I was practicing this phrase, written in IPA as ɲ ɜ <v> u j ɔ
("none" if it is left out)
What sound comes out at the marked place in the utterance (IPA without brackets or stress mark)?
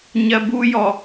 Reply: b